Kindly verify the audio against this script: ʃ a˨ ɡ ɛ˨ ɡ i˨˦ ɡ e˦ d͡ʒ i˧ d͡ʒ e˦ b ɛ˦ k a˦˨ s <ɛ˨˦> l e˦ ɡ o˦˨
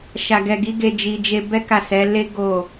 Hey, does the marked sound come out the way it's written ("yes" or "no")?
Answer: yes